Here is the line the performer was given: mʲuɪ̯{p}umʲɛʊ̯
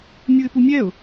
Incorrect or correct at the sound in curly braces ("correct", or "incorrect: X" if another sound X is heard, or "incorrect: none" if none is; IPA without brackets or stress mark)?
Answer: correct